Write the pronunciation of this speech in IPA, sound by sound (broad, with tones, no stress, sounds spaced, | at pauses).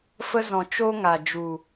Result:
f ə˦ z ɔ̃˨ t͡ʃ o˦ ŋ a˨ d͡ʒ u˨